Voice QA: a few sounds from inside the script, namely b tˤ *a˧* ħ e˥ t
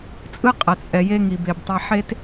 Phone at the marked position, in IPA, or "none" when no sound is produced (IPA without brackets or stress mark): a˧